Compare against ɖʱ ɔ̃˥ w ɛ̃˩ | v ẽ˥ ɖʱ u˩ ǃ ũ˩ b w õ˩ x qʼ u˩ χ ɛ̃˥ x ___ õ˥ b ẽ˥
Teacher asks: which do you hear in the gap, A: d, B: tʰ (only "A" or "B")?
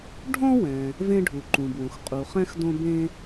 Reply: A